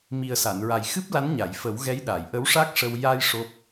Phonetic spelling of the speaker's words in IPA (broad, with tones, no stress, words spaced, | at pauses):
mi˨˩ə̯sa˨˩˨nɹa˨˩j xɨ˦˥p̚la˧˥nɲa˨˩˨j fə˨˩˦wɣɛ˧˥j ɗa˨˩˨jʔə˧˥wʂa˦˥k̚ʂə˧w ja˧j ʂo˦˥p̚